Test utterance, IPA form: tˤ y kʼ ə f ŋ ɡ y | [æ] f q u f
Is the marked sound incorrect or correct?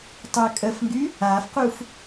incorrect